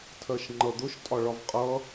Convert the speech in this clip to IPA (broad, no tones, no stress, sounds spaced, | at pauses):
tʰ ɜ ʃ ŋ͡ǃ ʌ d̪ ʊ ʃ tʼ ɒ ɭ ɒ v qʼ ʌ